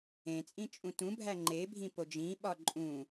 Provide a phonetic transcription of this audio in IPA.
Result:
ẽ t͡sʼ ĩ t͡ʃʼ ũ t ũ bʱ æ ŋ͡ǃ e bʱ ĩ p o d͡ʒ ĩ ɓ ɒ ǃʼ ũ

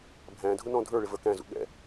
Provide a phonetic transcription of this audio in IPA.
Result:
bʱ æ̃ dʱ ʊ n ɔ̃ dʱ ə˞ ɭ ɪ v ə˞ k æ̃ z ṵ ɠ ɛ̰

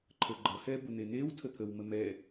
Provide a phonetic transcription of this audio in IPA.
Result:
ǃʰ ə ɡ͡ǃ ʌ h ɛ b ʊ n̪ e n e w tʰ ə t̪ʰ ə w m ə m ɛ

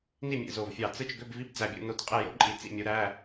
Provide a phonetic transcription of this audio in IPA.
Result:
n i˥˨ mʲ ḛ˧˩ z o˧˩ v fʲ ɑ˧˩ t͡s ɯ˥˨ t͡ʃ ɡ ø˧˥˧ b v i˧˥˧ b d͡z æ˧˩ bʲ ṵ˥˨ n o˧˩ t qʼ e˥˨ j o̰˥ ǃʼ i˧˩ t͡s ḭ˥˨ mʲ u˨˦ ɾ æ˧˥˧

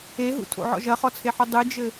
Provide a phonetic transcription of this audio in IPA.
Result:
e ɦ ṵ tʰ o̰ ʕ ɔ̰ ʒ ɐ χ ɔ t͡sʰ e ħ u dˤ ɨ d͡ʒ ɘ

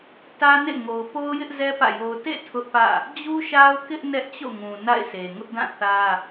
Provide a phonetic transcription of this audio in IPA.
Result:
t ä˦ n ḛ˦˨ ŋ o˨ ʊ̯ p o˦ ʊ̯ j ɪ˦ ʔ z ɛ˦ p ä̰˦˨ j o˦ ʊ̯ t ḛ˦˨ tʰ ʊ˦ ʔ p ä̰˦˨ | d͡ʑ u˦ ʃ a˦ ʊ̯ k ɪ˦ ʔ n ɛ˦ ʔ t͡ɕ o̰˦˨ ŋ ũ˨ n a̰˦˨ ɪ̯ s e˨ ŋ ʊ˦ ʔ d ã˦˨ θ ä˦

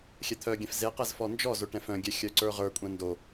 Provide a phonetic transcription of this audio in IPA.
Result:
xʲ ɛ t̪ʰ œ ɡʲ ɛ̃ f z e q ɛ z f ɔ n d͡ʒ ɔ z o ʈ ɛ̃ f œ̃ ɡʲ ɛ xʲ œ ǀ ə˞ ʁ ə˞ kʷʼ ɛ̃ n d o

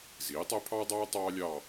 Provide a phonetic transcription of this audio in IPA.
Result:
z iː˩˥ tˤ ɛ˥ pʰ ɑː˥ dˤ ɑː˥ tˤ ɑː˥ lʲ ɑ˥˧

